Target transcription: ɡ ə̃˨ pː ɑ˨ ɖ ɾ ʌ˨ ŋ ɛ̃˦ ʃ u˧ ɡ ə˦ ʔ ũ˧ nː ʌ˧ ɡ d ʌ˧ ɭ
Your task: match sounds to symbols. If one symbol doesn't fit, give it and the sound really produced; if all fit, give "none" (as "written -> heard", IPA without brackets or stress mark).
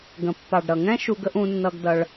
none